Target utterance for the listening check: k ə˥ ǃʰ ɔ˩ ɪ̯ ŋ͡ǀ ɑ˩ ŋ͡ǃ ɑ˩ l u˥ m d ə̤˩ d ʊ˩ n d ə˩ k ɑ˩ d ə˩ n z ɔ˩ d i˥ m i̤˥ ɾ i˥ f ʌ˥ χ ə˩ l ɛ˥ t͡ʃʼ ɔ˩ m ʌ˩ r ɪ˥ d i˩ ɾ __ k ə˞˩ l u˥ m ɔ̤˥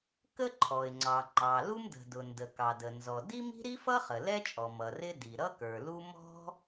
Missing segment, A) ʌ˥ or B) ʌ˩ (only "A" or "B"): A